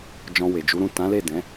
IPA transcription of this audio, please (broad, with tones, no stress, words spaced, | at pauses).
d͡ʒɔ̃˧we˨d͡ʒu˨˦ɾũ˦˨ tã˨˦le˦˨dɛ̃˨˦